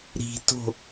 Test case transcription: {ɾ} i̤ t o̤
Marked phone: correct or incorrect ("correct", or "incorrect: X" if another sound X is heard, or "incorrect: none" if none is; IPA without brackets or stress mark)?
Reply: correct